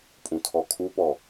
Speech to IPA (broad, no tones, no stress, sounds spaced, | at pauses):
pʼ ũ tʰ ɔ kʰ u p ɔ